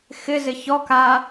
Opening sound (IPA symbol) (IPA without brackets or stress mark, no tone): x